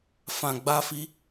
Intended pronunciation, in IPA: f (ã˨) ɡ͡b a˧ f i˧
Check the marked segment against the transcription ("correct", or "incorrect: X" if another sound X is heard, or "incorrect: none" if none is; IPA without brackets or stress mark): correct